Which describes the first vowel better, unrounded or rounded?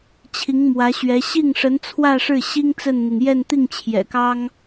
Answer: unrounded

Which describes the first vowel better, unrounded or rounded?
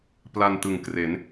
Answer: unrounded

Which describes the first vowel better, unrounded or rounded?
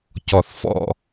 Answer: rounded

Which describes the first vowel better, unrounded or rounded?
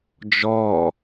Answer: rounded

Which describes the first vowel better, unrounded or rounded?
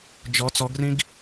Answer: rounded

